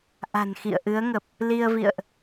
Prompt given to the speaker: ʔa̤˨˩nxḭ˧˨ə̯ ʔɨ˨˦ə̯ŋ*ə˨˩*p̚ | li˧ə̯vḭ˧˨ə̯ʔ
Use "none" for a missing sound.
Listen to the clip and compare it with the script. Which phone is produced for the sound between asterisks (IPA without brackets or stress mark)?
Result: ə˨˩